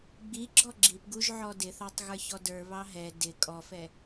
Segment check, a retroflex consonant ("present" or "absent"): absent